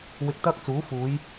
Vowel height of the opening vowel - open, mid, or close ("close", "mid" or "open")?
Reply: close